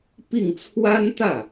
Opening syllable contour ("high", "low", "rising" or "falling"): falling